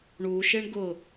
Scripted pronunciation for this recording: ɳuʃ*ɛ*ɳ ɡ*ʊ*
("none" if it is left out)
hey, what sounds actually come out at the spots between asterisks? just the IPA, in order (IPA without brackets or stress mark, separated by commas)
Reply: e, ʊ